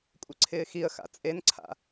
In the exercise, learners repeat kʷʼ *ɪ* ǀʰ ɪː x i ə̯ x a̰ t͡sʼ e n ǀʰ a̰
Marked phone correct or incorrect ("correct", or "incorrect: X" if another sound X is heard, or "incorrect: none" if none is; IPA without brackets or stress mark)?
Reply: correct